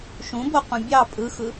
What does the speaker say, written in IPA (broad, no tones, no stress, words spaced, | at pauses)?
ʃũboqũ bʲɑ pʼɯxɯ